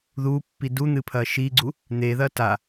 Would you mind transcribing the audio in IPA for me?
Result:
ð u pː i d u n̪ ɨ pʰ ɐ ʃ i ɡ͡ǀ u | n̪ e ð ɐ t a

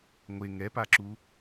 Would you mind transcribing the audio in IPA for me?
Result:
ŋʷ e ŋ ɛ p a ǁ u

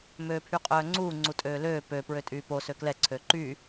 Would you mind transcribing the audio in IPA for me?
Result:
m øː pʰ y qʼ œː ŋ͡ǀ uː ŋ͡ǀ u tʼ øː l øː p ø p ɹ ø tʼ yː p o s ø k l ɛ ǀʰ ø ǃ y

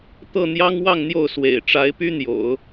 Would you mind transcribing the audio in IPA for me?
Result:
t̪ ɤ˥˩ n̪ j ɑ˥ ŋ w ɑ˥˧ ŋ n̪ j o˥˩ ʊ̯ s w ḛ˨˩ ɪ̯ ʈ͡ʂ a˧˥ ɪ̯ p y˥ n̪ j o̰˨˩˦ ʊ̯

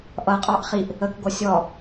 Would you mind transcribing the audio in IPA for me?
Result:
ʔ ʌ qʼ ɑ ʔ χ i ʔ | ə k ɡʷ ʌ sʲ ɔ

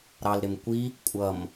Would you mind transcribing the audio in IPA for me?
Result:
ɾ ɑ l ɾ ɪ m kʷ i | kʷʼ ʌ m

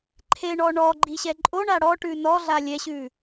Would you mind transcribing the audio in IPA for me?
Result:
ǃʰ e ɳ ɔ ɳ ɔ ɡ͡ǃ i ɕ ɛ ǃʼ o ɳ a ɽ ɔ ʈ ʉ n ɔ ɮ a lʲ ɛ ɕ ʉ

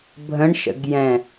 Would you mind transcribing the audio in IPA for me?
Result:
bʱ ə̃ ɳ ʃ ə̰ ɡ j ɛ̃

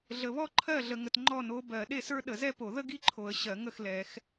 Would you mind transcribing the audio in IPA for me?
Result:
ɮ ə˨ β ɔ˥ ǃʰ ɜ˥˩ ɮ ə˨ ŋ ə˨ t ŋ͡ǃ ɔ˥˩ n o˧˥ b ɜ˨˩˦ ɗ e˥˩ s ə˞˥ ɗ ə˨˩˦ z ɛ˥ p o˨˩˦ ð ə˥ ɡ i˥˩ ǃʰ o˨˩˦ ə̯ ɕ ɜ˨˩˦ ŋ ə˥˩ x l ɛ˨˩˦ x

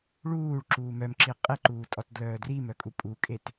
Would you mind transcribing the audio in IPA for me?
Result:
ɭ uː ɭ ǁ uː m œ m ǁ i qʼ e ǃ uː tʼ ɔ t d l œː d r i m œ kʼ u pʼ u kʼ e t

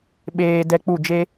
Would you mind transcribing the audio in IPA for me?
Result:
ɓ eː˧ d ɛ˧ k͡p u˦˨ d͡ʒ e˦

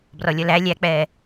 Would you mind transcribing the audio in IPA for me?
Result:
b r ɔ lʲ ʌ l æ lʲ æ k͡p ɛː

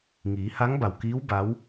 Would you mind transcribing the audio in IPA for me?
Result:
ŋ iː˩˧ h a˧˥ ŋ b a˩ w k iː˧˥ w b a˧˥ w

